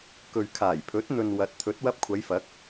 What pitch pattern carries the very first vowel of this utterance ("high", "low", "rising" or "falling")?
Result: low